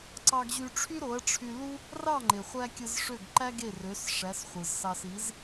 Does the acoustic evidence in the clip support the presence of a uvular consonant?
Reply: yes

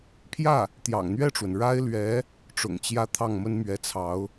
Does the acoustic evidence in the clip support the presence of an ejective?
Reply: no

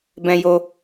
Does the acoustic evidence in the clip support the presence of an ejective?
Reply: no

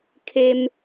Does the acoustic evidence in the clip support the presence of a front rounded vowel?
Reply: no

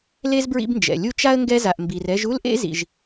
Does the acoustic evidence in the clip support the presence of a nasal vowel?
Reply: no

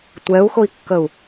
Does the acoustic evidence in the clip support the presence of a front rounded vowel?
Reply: no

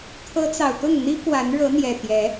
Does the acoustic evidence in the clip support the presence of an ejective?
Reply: no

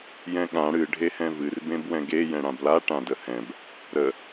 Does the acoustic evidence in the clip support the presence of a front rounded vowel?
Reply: no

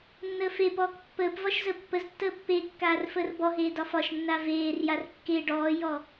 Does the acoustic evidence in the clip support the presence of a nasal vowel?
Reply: no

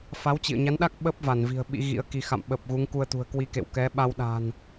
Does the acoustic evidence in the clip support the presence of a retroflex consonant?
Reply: no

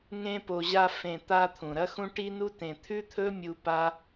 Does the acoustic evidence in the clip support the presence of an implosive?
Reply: no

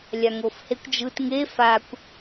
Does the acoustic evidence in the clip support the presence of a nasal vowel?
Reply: no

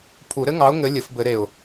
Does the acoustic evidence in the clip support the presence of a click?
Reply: no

